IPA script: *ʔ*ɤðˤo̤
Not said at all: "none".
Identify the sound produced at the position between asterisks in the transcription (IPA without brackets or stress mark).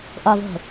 ʔ